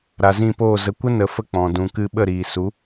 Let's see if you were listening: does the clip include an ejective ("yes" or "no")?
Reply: no